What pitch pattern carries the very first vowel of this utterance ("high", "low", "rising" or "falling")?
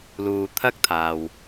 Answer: low